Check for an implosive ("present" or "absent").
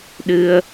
present